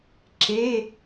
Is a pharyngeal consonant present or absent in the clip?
absent